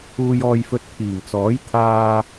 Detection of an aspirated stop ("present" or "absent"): present